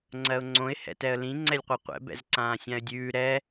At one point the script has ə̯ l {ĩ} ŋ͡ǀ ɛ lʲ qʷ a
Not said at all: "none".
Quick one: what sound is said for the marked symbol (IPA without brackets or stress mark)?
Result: ĩ